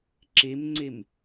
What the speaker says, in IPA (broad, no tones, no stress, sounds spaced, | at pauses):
ǁ i m ŋ͡ǀ i m